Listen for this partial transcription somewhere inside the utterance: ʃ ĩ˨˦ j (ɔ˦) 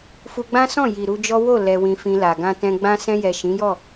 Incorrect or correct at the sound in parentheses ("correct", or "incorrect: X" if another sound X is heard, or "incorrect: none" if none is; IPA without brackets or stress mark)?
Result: incorrect: ɔ˦˨